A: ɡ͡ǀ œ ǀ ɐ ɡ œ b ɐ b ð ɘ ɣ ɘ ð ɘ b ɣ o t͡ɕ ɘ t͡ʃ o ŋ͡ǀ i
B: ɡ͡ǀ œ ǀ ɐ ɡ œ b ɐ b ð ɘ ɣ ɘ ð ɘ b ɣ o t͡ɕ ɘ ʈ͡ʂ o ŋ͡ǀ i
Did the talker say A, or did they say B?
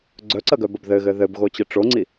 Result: B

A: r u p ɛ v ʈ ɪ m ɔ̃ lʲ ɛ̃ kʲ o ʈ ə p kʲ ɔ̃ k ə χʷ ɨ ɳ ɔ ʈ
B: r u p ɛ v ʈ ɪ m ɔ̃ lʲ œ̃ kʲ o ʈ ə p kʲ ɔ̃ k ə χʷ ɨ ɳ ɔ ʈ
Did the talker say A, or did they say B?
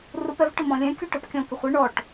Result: A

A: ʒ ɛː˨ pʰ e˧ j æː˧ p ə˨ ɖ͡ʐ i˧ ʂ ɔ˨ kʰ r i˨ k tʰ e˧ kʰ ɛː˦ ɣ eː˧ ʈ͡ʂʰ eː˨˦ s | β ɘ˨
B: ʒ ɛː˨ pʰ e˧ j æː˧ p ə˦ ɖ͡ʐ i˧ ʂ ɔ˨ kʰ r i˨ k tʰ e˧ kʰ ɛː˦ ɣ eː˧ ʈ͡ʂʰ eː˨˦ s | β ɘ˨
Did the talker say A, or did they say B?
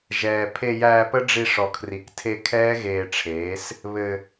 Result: B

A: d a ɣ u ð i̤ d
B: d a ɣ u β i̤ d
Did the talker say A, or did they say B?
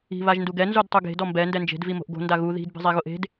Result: A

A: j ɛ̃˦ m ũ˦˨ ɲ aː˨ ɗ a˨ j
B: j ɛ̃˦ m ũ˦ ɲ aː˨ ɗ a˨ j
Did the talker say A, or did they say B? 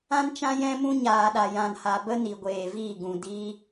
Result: B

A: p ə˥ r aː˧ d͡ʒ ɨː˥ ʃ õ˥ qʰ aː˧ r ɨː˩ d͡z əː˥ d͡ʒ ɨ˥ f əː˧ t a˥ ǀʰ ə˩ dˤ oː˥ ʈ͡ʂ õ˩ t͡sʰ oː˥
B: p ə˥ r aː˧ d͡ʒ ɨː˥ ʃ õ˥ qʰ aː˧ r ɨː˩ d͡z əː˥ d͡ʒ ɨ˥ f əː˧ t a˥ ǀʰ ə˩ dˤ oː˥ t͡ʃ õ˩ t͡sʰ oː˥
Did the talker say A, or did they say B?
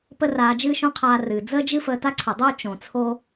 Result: B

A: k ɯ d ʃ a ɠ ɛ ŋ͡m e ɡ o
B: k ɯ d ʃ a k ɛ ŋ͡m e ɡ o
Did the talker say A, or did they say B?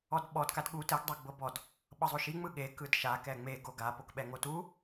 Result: B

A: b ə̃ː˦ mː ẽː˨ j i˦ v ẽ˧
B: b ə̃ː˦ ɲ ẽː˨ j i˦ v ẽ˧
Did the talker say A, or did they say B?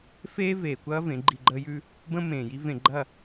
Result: A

